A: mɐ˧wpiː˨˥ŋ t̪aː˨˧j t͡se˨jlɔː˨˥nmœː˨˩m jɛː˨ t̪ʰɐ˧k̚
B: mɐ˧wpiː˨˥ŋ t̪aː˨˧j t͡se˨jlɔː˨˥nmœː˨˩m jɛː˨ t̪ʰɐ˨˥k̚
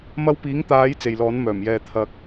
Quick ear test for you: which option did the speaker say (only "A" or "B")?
A